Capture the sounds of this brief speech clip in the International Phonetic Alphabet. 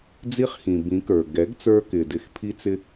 d͡zi˦χxĩ˨bĩ˨˦ kə˞˨ ɡɛ˨˦ɡt͡sə˞˧kɪ˨ dɪ˧xpʰi˦t͡sɪ˦

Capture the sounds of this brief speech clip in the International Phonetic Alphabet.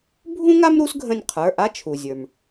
bʱũ˥ŋa˥m ɾu˥sɡʱə̃˦˨nʲqʰə˞˩˧˩ ʔa˥t͡ʃʰu˩zʲə˞˩m

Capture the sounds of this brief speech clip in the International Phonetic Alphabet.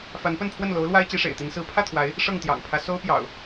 fa˨˦npə˥˨npʰwə˥˨n lo˨˦ʊ̯lwa˦ɪ̯ t͡ɕi˨˦ʂḛ˨˩ɪ̯t̪i˨˦n sɹ̩˨˦ pʰä˥˨t̪ʰwa˨˦ɪ̯ | ʂɤ˥˨ŋt̪jɑ̰˨˩ŋpʰä˦ so˦ʊ̯pjɑ̰˨˩ʊ̯

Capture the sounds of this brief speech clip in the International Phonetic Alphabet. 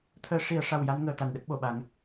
t̪ʰəː˧ ʂi˨˩˦ə̯ʂa˨˩wja˧n ŋəː˧t̪a˨˩nɗə˦˥k̚ ɓo˨˩˨ɓa˨˩˦ŋ

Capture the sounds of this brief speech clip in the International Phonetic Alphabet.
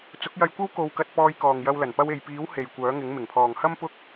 t͡sʊ˨˥k̚jɐ˧jkʷɐ˥w ko˧wkɐ˧t̚ pɔː˧jkɔː˨ŋjɐ˧w lɐ˨˩npɐ˧we˨jpiː˨˥w he˨jkʷœː˨˥ŋɪ˨˥ŋ mɪ˨˩ŋpʰɔː˨ŋhɐ˥m pʊ˥k̚

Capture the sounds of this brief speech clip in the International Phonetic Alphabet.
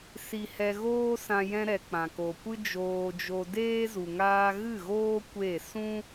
si˧hɛ˧ɣoː˦sã˧ jɛ̃˧ ɾɛ˨ k͡pã˨ ko˨ kʷɨ˦d͡ʒoː˧d͡ʒo˧deː˦ zu˨ŋaː˧ɣɨ˦˨ ɣoː˦ kʷe˦˨ sũ˦

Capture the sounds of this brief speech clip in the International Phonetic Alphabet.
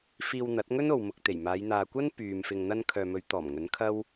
fiː˧wn̪ɐ˨˥t̚ŋɵ˥no˨w mʊ˨k̚t̪e˨˩jmaː˨˧j n̪aː˨kʷɐ˥n pyː˨m fɪ˨ŋn̪ɐ˧n kʰœː˨mɵ˨˧ɥt̪ɔː˨˩m ŋɵ˨˥nkʰɐ˥w

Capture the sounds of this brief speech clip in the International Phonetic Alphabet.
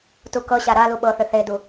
tukɤɕa ɾalu ɓɤθʏ θedu

